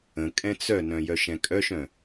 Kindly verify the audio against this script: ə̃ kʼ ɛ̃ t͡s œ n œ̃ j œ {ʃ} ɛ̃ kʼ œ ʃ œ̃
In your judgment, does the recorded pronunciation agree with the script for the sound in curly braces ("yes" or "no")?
yes